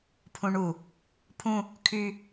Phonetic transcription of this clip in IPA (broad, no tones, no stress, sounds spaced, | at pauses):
pʰ ũ ɳ u | pʰ ũ | kʰ y